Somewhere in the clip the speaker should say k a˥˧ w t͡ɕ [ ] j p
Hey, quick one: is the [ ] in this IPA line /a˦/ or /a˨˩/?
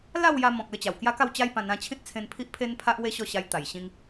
a˦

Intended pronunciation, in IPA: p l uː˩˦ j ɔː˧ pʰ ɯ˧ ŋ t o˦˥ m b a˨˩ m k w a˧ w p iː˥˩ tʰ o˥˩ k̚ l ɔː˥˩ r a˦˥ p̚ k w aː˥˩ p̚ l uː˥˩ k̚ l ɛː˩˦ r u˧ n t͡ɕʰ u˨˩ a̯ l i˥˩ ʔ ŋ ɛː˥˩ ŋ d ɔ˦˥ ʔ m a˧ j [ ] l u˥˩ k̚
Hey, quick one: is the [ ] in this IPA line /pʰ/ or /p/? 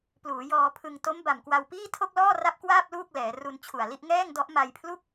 pʰ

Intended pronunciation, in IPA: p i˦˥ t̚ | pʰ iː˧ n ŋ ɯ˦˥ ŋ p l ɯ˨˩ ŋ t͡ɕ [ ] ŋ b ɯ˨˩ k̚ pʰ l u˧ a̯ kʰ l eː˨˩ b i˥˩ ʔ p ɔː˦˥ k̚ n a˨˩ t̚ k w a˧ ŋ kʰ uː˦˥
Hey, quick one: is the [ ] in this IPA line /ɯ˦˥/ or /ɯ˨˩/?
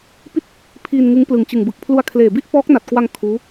ɯ˨˩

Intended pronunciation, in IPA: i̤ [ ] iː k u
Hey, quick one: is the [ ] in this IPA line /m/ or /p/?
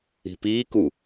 p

